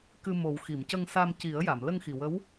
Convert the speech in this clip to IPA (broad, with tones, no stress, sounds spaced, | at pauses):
k ɨ˧ m o˨˩˦ w x i˨˩˨ m c ə˧ ŋ s a˧ m c i˨˩˦ ə̯ j a˨˩˨ m l ə˧ ŋ x i˨˩ w ə˧˥ w